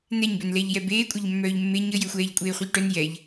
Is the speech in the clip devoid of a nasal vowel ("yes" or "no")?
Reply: yes